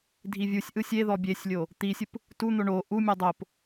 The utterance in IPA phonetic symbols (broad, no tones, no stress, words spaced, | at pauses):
dʱivʲusʲʔɯ sʲeðɔ bʲesʲlʲo | t̪isʲɯp | tun̪o ɳo ʔumʲɔ dˤop